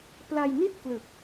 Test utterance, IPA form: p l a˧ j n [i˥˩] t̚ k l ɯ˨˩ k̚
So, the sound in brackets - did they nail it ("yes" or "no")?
yes